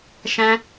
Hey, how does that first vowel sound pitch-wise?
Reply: high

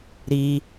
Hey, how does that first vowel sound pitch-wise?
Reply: high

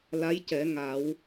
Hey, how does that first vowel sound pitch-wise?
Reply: rising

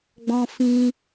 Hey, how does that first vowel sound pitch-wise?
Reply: high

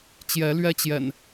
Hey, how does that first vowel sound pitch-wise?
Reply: rising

